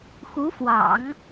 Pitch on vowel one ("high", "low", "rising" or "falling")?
rising